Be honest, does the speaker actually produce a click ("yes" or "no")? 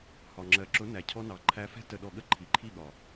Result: yes